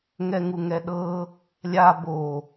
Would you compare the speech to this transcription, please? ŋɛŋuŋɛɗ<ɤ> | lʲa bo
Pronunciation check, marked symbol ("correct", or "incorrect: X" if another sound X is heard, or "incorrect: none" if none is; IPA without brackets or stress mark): correct